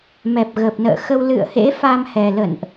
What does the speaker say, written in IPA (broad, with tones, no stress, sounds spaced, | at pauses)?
m ɛ˨˩ p̚ ɣ ə˨˩ p̚ n ə̰ː˧˨ x ə˧ w l ɨ̰˧˨ ə̯ h ḛ˧˥ f a˧ m h ɛ˨˩ l ə̰˧˨ n ʔ